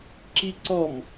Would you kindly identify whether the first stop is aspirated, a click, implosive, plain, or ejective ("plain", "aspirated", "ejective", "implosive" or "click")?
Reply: click